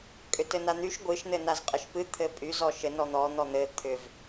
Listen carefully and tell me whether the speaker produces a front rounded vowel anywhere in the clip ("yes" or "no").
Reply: yes